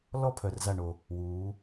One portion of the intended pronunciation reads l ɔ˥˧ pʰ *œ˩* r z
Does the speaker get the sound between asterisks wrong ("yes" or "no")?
no